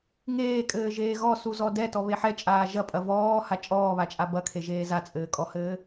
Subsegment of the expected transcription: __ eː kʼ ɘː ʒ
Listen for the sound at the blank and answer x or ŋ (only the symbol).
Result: ŋ